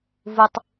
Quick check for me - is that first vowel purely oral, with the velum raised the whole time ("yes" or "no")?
yes